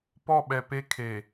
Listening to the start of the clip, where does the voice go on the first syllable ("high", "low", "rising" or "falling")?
falling